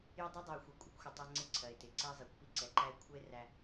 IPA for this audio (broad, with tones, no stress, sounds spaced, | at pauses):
j ə˦ dˤ æ˥ dˤ ɜ˨ o̯ xʷ ɛ˨ kʷʼ ɪ˥ kʷ xʷ ɪ˩ tˤ æ˦ ŋ͡ǀ ɪ˦ ǀʰ ɜ˩ e̯ t ɪ˩ ǀ ɛ˦ zˤ i˩ kʷ p i˥ ǀ ɛ˨ ǃ æ˦ e̯ kʷʰ ə˥ e̯ r æ˦